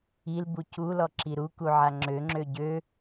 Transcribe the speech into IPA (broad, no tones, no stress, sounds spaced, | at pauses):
i l b u c u l ɔ ǁ i ɾ u k u ʕ a ŋ͡ǁ ø ŋ͡ǁ ø ɟ ø